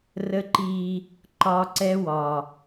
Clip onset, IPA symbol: r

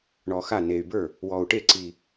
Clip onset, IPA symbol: ɳ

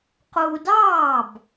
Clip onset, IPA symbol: q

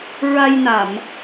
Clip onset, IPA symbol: ɹ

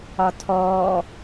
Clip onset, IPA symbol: ɒ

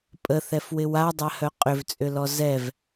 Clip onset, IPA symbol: pʼ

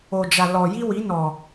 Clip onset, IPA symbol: o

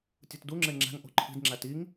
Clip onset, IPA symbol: tʲ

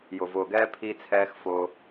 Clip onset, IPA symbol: j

